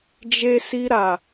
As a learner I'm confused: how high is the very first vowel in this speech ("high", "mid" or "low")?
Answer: mid